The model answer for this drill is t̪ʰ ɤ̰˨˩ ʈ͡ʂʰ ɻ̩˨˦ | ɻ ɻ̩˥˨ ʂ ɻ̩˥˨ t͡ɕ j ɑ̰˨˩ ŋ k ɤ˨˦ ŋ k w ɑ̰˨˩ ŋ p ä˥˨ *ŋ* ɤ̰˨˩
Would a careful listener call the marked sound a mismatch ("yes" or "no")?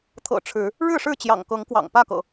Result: yes